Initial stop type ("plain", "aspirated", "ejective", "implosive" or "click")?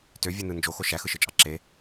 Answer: plain